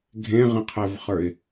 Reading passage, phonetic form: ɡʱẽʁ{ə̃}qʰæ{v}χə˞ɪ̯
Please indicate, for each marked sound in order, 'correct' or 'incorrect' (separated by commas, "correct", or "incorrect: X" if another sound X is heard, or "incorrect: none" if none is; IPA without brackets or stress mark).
correct, correct